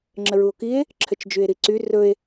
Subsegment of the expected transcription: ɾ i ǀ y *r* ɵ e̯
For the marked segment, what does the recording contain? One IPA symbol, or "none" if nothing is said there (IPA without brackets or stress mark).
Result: r